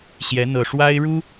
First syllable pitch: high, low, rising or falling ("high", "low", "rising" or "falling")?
rising